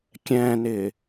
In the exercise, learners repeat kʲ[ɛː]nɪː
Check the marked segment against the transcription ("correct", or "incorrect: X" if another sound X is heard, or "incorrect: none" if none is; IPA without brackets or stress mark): incorrect: ɛ̃ː